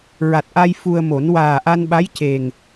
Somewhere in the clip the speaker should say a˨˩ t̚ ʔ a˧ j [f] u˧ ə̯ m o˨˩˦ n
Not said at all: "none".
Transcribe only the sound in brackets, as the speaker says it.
f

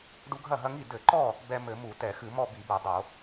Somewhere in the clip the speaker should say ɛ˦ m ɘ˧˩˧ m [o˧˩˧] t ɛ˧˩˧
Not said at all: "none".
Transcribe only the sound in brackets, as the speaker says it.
u˧˩˧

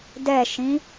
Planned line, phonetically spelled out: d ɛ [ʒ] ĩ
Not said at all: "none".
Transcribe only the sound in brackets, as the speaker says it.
ʃ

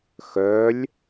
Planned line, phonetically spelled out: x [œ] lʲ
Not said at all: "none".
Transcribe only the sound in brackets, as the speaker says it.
œ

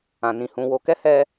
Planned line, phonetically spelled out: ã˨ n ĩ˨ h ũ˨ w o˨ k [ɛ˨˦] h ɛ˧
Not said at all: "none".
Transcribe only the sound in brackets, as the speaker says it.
ɛ˨˦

